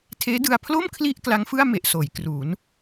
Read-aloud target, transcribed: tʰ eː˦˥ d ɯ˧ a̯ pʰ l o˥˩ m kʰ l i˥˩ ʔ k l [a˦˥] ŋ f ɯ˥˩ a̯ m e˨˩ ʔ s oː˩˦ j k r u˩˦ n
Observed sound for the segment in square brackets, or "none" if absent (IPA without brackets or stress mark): a˦˥